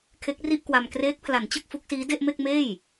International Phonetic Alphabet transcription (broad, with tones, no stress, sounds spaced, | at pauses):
kʰ e˦˥ k̚ r i˥˩ ʔ k w a˧ m k r eː˦˥ k̚ pʰ l a˩˦ n t͡ɕ ɯ˥˩ k̚ f u˦˥ k̚ s iː˦˥ d e˥˩ ʔ m e˥˩ k̚ m eː˥˩ j